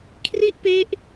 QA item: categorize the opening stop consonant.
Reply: aspirated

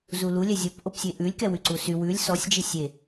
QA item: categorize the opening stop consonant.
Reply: plain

